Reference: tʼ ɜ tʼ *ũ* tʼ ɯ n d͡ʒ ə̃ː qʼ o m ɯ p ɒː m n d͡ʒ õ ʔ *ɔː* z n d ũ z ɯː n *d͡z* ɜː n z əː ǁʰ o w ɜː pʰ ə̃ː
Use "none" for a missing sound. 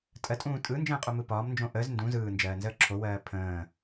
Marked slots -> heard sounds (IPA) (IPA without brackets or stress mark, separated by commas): ũː, əː, d͡ʒ